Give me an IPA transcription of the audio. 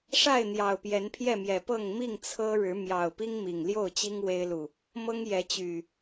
ʂ a˥˨ ɪ̯ n̪ j ɑ˨˩ ʊ̯ p j ɛ˨˦ n pʰ j ɛ˥˨ m j ɛ˨˩ p ɤ˥˨ ŋ m i˥˨ ŋ t͡sʰ ɤ˦ ɻ ɻ̩˨˦ m j ɑ˨˩ ʊ̯ p i˦ ŋ m i˨˩ ŋ l j o˥˨ ʊ̯ t͡ɕ i˦ ŋ w e˦ ɪ̯ l u˨ | m ɤ˦ ŋ j ɛ˨˦ t͡ɕ y˨˩

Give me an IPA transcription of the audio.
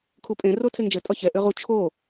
kʰ u pʼ ẽ r o tʰ e ŋ d͡ʒ ɘ tʼ ɒ ç ɛ ʔ ʏ ʁ u t͡ʃʰ o

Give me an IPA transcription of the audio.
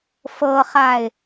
f ɤ χ a ɪ̯

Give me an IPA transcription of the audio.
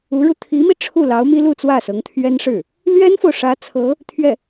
u˧˥ ɻ u˧ t̪ʰ i˧˥ m i˧ ʈ͡ʂʰ u˥˩ l ɑ˧˥ ʊ̯ m i˥ l u˥˧ t͡s w ä˥˩ s ɤ˧˥ ŋ t̪ʰ ɥ ɛ˥ n ʂ ɻ̩˥˩ | l ɥ ɛ˥ n f o˨ ʊ̯ ʂ ä˧˥ t͡sʰ ɤ˧˥ | t̪ʰ ɥ ɛ˥˩

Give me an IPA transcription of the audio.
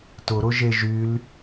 t ʊ ɾ ʊ ʒ e ʒ y l

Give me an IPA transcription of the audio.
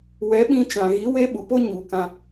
w ɛ˨˦ ɓ ĩ˧ t͡ʃ ã˨ ɣ i˨˦ w e˧ ɓ u˨ p o˦ ɲ u˨ k ã˧

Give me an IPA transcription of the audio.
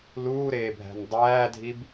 l uː ɾ eː bʱ æ̤ n dˤ æː dʱ i b

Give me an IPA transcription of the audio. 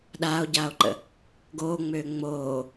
ɗ aː o̯ ɟ aː o̯ ǃ ə̰ | ɡ oː ŋ͡m øː ŋ͡m oː

